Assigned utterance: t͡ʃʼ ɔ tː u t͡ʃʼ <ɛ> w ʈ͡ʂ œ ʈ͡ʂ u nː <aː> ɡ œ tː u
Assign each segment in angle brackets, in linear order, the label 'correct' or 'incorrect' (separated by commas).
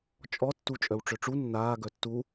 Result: incorrect, correct